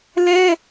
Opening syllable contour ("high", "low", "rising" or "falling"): high